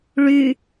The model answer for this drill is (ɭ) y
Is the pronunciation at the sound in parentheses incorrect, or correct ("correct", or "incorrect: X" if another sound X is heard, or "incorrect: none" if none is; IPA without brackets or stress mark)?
correct